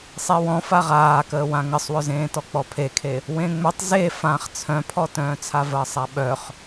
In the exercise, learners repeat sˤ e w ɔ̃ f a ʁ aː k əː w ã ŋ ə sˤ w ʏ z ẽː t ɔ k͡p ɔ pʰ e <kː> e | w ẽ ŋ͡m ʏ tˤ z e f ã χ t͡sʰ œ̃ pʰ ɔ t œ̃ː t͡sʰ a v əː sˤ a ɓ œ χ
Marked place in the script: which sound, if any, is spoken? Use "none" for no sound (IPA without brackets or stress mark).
kʰ